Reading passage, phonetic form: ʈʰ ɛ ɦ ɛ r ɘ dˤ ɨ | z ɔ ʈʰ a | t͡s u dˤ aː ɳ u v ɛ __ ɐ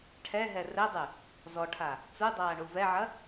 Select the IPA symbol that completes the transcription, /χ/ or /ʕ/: ʕ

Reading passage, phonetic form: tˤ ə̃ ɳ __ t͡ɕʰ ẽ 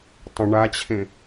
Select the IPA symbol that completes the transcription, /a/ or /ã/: a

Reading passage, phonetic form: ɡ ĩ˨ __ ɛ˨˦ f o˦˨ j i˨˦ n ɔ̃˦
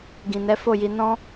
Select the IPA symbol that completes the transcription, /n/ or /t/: n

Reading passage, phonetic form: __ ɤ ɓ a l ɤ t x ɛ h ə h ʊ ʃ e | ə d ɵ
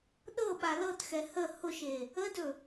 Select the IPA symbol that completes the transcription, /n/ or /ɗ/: ɗ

